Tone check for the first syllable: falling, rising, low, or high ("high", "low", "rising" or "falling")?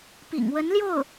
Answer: low